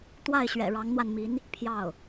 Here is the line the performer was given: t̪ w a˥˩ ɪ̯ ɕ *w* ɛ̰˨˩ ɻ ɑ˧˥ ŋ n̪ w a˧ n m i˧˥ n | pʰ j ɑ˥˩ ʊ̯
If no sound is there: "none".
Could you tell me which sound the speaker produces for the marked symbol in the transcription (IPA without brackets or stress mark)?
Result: ɥ